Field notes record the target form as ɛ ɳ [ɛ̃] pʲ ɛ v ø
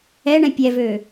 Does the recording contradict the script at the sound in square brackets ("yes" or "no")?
no